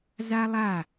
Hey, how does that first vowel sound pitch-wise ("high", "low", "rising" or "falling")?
high